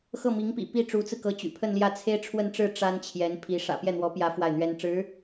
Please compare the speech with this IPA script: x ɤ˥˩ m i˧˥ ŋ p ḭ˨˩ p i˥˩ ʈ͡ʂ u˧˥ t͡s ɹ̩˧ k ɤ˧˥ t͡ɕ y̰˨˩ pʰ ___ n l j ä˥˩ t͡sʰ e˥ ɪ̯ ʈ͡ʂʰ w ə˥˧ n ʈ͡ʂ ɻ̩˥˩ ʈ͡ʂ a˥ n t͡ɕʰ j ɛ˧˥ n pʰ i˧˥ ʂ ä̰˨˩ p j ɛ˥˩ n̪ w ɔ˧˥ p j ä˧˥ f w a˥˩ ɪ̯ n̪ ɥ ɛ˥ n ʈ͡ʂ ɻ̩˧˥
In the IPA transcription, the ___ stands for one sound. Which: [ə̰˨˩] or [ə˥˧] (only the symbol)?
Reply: ə˥˧